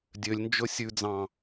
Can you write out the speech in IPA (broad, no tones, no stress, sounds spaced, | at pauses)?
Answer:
dʲ ø lʲ n d͡ʒ ɵ sʲ ʉ d͡z ɑ̃